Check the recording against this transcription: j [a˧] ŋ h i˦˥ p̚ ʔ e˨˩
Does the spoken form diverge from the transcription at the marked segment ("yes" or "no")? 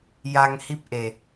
no